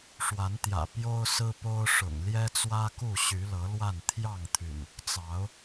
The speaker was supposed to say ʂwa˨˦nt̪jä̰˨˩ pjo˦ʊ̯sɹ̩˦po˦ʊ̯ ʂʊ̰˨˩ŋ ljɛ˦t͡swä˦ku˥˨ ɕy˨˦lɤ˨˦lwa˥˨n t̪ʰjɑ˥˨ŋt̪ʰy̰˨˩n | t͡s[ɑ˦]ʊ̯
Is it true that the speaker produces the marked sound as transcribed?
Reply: no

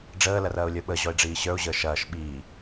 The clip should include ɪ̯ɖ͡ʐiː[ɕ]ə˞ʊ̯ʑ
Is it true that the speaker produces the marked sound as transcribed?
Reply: yes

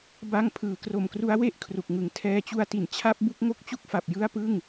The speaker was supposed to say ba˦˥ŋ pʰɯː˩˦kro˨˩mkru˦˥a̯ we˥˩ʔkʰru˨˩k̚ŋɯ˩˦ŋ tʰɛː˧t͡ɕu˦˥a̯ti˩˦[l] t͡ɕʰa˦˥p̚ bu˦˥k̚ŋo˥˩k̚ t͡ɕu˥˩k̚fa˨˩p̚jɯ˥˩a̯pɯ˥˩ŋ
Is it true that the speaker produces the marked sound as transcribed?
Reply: no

